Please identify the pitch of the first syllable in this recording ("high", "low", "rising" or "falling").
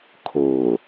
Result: low